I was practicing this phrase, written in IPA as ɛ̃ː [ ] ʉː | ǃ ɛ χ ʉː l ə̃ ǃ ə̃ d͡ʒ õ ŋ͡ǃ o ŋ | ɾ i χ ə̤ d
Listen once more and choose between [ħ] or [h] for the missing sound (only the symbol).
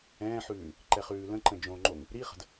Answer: ħ